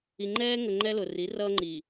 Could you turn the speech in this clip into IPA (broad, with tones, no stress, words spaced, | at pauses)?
i˨ŋ͡ǃɛː˦ŋə˨ ŋ͡ǃɛ˦lʊ˨ ri˨˦ rʌː˦ŋ͡ǃiː˨